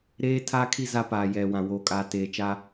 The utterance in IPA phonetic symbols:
ɾ eː˦ tʰ aː˦ kʰ i˦˨ z a˦ p aː˨ j ɛ˨ w ã˨ w oː˨ kʼ aː˨ t eː˨ t͡ʃ a˦

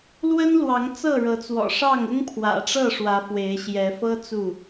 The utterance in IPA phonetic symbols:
l w ə˦ n l w ɑ˨˦ ŋ t͡s ɤ˥˨ ɻ ɤ˨˦ t͡s w ɔ̰˨˩ ʂ ɑ˥˨ ŋ ʊ˦ ŋ pʰ w ä̰˨˩ ʈ͡ʂ ɤ˥˨ ʂ w ä˨˦ f w e˨˦ ɪ̯ ɕ j ɛ˨˦ f ɤ˦ t͡s u˥˨

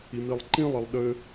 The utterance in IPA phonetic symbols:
i m i lˠ ǃ ĩ lˠ i lˠ ɗ ɘ

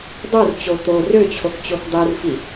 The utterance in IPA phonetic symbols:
dˤ u r t͡ɕ o t̪ o r ø t͡ɕʰ o k t͡ɕ o k dˤ i r f i

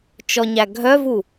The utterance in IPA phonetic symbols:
t͡ʃ ɔ ɲ æ ɡʱ œ v u

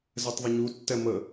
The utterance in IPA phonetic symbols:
z ɛ tˤ ðˤ ə ɲ u tː ɛ m ə

